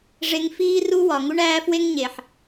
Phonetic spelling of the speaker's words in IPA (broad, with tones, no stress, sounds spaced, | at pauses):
ʐ e˧ ŋ f iː˦ r u˦ w ɒ˨ ŋ u˦ ɳ æː˦ f w e˦ ŋ ɲ e˨ ħ